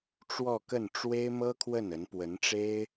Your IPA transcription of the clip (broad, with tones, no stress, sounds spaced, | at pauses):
ʈ͡ʂ w ɔ˥˧ k ə˥˩ n ʈ͡ʂ w e˥ ɪ̯ m ɤ˥ kʰ w ə˥˩ n ə˧˥ n p w ə˧˥ n ʈ͡ʂ e˥ ɪ̯